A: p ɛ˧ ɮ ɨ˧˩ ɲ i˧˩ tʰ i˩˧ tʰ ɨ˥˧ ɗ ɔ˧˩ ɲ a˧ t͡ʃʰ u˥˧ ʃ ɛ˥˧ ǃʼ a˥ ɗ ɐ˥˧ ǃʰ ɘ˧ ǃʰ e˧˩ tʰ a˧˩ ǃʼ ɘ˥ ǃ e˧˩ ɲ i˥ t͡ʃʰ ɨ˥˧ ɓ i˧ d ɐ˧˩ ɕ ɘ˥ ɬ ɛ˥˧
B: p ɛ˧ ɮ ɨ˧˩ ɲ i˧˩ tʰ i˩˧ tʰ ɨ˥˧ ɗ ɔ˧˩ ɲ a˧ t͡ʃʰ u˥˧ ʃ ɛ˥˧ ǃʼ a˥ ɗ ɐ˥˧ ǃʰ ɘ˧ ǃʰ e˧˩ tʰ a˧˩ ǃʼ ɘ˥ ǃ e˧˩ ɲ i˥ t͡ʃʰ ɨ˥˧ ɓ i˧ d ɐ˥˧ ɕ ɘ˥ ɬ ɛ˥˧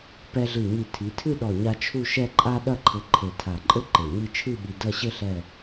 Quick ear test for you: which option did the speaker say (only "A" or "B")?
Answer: B